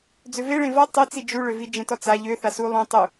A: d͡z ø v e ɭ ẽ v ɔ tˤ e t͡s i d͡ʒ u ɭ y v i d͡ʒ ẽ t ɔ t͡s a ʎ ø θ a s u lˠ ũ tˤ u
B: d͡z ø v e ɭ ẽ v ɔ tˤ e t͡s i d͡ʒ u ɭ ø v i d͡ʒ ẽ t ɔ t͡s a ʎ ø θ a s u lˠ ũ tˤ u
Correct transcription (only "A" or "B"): B